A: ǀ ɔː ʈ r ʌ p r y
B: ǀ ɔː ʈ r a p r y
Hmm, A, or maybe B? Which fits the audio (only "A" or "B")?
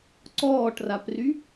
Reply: B